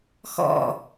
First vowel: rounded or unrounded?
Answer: rounded